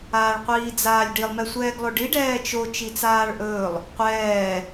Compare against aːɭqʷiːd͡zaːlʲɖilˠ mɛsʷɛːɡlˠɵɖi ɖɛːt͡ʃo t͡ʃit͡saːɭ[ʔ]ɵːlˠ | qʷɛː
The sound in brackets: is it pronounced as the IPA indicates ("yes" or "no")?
yes